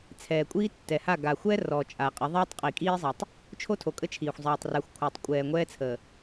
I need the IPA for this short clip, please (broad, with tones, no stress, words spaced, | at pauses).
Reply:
t͡sʰɛː˨kʷʼiː˦tːɛ˨ha˦˨ ɡa˨xʷɛ˦ rɔ˨t͡ʃʼa˨ qʼə˨˦ ðˤɛː˦tˤqʼi˨kʼiː˦zˤəː˨tˤ | t͡ʃʰo˦tʰo˨kʼə˦t͡ʃʰiː˨xʷ zˤɛː˨tˤra˨xʷkʷʰəː˨tˤ kʷʼɛː˨ŋʷɛː˦ t͡sʰəː˨